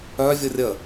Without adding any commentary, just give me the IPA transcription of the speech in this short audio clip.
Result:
œ vʲ ɤ rʲ ə

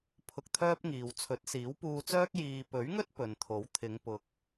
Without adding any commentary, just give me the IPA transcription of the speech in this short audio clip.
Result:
pʰ ʊ˧ k̚ t̪ʰ œː˥ p̚ ŋ iː˨ w t͡sʰ ɵ˨˥ t̚ s iː˨˥ w p uː˧ t͡s œː˥ k̚ j iː˨ p ɵ˨˥ ɥ ŋ ɵ˥ t̚ p ɵ˨ n t̪ʰ o˨˥ w t̪ʰ ɪ˨˧ ŋ p ʊ˨˥ k̚

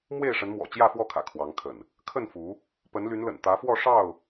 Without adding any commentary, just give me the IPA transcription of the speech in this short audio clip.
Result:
m w e˥˨ ɪ̯ ʂ ə˨˦ n m w ɔ̰˨˩ t͡ɕ j ä˥˨ f w ɔ˥˨ kʰ ä̰˨˩ kʰ w ɑ˨˦ ŋ kʰ ə̰˨˩ n | kʰ ə˥˨ n f u˨˦ | p ə˨˦ n l y˨˦ n l ə̰˨˩ n t̪ ä˨˦ f w ɔ˥˨ ʂ ɑ˥˨ ʊ̯

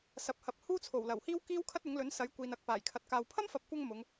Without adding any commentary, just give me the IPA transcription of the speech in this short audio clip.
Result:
s ɐ˨ p̚ h ɐ˨˥ p̚ h uː˥ t͡sʰ o˨˩ w l ɐ˨˩ w h iː˥ w k iː˥ w kʰ ɐ˥ t̚ ʊ˨˥ ŋ l ɵ˨˥ n s ɐ˨˥ j kʷ iː˨ n ɐ˨˥ k̚ p aː˨˩ j kʰ ɐ˧ t̚ k aː˧ w pʰ ɐ˥ m f ɐ˨ p̚ kʷ ɐ˧ ŋ m ʊ˨˧ ŋ

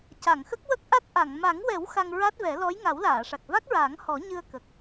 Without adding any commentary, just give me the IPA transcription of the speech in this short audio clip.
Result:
c a˨˩˨ ŋ x ə˦˥ k̚ w ə˦˥ k̚ ʔ a˦˥ t̚ ʔ a˨˩˨ ŋ m a˨˩˦ ŋ w ɛ˨˩˦ w x a˧ ŋ ɹ a˦˥ t̚ v ɛ˨˩˦ l ɔ˧˥ j ŋ a˨˩˦ w l aː˨˩˨ ʂ a˨˩ k̚ v a˦˥ k̚ ɹ aː˨˩˦ ŋ h ɔ˨˩˦ ɲ ɨ˧ ə̯ k ə˨˩ k̚

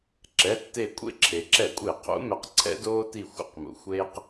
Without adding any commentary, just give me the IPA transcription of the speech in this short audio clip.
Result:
ǁ ɛ˩˧˩ tː e˧˩ kʷʼ ḛ˦ ǁʰ e˩ ǁ ɛ˧˩˧ kʷʼ e˧˩˧ qʰ ṵ˨˦ m ɛ˨˦ q ǀʰ ɛ̰˦ d oː˦ t i˧˩ xʷ ə̰˨˦ q m ṵ˩ xʷ eː˦ q

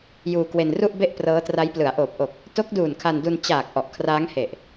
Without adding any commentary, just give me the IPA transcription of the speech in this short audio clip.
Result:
j uː˧ k w e˧ n r u˥˩ ʔ b e˥˩ ʔ p r ɤː˦˥ t r a˦˥ j p l ɯ˩˦ a̯ ʔ oː˨˩ p̚ ʔ o˨˩ k̚ | t o˦˥ k̚ d uː˨˩ n kʰ a˧ n d u˧ n t͡ɕ aː˨˩ k̚ ʔ ɔ˨˩ ʔ kʰ r aː˦˥ ŋ h e˨˩ ʔ

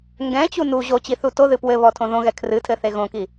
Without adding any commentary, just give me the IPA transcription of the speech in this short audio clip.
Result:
ŋ ɡ ɛ̃ t͡ɕ u n u ʑ o t͡ɕ i θ u t o ð ɨ p w ɘ β ɔ tʰ õ ð õ ɣ ɛ kʰ r ɨ tʰ ɘ θ e ɣ õ k i

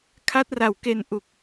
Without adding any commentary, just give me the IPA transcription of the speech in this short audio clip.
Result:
kʰ a˦˥ t̚ r a˨˩ w k e˧ n ʔ u˨˩ k̚

